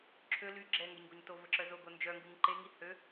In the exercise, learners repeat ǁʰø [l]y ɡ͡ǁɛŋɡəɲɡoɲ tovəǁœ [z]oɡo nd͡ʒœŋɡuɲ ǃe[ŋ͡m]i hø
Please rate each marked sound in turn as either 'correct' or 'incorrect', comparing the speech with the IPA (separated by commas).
correct, correct, incorrect